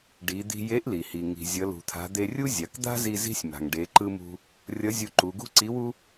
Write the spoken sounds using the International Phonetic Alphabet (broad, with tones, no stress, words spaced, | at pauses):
ɖi˩˧d̪i̤˧ je˧˥ʔli˩ hi˩ ŋi̤˩zʲʌ˩˧lṳ˩t̪ʰa̤˩˧ d̪e˧rʲu˥zʲa˩˧k d̪a̤˥zi˧ zi̤˥sʲma̤˩ŋ ɖe˩˧ǃɯ˧mṳ˧ | rʲʌ˧˥zʲu˧ǃu˩˧ ɡṳ˥ǀi˧˥wu˥